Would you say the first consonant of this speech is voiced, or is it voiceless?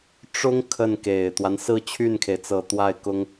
voiceless